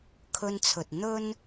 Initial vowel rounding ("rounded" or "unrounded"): rounded